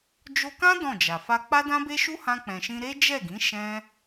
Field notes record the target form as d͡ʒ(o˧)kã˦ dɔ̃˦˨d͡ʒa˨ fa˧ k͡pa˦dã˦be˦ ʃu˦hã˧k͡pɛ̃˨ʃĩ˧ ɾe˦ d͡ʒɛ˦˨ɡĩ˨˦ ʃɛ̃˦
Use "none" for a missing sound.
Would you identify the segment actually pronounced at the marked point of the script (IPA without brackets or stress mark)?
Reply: o˧